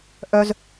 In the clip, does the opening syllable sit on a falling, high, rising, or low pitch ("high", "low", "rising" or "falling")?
high